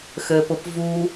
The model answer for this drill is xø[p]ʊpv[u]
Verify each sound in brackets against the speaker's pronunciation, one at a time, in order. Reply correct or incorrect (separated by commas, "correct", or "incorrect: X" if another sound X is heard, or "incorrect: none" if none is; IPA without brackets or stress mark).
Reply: correct, correct